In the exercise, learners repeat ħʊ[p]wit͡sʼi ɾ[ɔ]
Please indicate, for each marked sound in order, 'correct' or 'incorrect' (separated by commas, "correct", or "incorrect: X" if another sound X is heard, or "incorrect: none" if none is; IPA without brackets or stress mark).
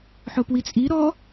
correct, correct